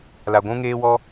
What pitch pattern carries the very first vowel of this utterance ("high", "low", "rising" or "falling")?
low